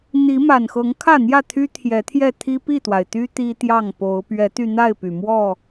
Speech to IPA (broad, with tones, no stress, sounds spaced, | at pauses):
n̪ i˨˦ m a˨˩ n x ɤ˨˦ ŋ kʰ ä˥˨ n̪ j ä˥˨ t̪ʰ y˦ t̪ʰ j ɛ˨˦ t̪ʰ j ɛ˥˨ t̪ʰ i˦ p i˥˨ t̪ w a˩ ɪ̯ t̪ y˦ t̪ i˦ t̪ j ɑ˥˨ ŋ p o˨˦ ʊ̯ p ɥ ɛ˨˦ t̪ y˧ n̪ a˥˨ ɪ̯ p y˩ m w ɔ˥˨